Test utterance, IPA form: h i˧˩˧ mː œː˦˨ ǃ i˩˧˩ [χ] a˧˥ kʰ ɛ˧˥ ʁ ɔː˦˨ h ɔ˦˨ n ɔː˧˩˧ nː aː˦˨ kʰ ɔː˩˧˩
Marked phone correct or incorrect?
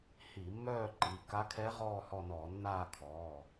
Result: incorrect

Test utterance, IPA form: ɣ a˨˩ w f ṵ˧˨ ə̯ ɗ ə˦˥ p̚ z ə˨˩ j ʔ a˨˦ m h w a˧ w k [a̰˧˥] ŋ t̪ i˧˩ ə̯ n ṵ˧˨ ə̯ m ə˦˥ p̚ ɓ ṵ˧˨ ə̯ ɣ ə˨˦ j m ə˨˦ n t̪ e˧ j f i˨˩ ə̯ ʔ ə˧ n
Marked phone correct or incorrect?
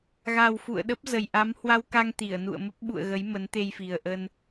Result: incorrect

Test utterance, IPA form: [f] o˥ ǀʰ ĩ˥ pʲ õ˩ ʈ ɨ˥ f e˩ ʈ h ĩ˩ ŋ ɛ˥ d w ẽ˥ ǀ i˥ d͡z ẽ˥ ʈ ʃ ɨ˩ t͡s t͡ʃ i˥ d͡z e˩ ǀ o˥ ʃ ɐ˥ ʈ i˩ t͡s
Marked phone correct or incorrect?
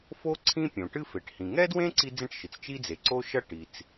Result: correct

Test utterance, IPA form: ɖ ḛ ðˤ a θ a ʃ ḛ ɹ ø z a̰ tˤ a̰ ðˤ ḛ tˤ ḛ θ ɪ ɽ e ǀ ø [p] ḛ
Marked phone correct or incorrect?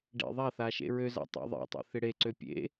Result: incorrect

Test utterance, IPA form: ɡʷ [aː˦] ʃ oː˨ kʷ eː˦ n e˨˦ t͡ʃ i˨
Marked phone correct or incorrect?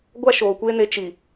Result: incorrect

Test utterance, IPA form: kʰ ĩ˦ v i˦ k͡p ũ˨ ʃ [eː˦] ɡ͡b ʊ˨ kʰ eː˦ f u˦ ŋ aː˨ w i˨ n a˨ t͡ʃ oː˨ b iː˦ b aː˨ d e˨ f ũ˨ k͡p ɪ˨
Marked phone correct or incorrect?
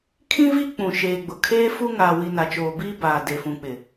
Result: incorrect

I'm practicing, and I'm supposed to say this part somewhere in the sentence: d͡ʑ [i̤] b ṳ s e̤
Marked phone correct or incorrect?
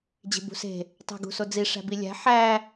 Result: incorrect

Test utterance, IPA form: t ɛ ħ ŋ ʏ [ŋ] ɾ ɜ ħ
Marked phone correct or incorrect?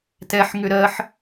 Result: incorrect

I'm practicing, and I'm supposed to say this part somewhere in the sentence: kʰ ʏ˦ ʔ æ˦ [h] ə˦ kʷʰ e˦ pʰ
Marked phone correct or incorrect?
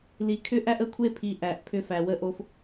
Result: incorrect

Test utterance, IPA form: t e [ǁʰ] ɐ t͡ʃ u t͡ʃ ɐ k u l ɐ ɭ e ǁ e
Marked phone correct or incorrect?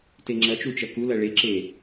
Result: incorrect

